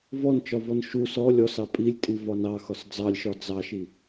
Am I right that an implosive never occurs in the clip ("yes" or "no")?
yes